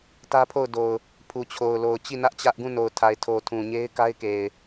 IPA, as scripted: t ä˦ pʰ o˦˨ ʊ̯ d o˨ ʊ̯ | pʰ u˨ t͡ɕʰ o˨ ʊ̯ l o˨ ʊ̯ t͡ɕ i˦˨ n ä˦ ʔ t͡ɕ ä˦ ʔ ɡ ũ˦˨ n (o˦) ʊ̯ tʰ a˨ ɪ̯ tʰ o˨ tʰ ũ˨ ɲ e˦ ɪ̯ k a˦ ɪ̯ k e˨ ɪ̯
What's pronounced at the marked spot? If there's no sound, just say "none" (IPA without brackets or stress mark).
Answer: o˨